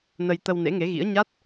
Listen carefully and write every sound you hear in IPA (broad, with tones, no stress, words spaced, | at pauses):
nə˧jt̪ə˧w nḛ˧˥ŋe˨˦ɣḭ˧˥ə̯ɲa˦˥t̚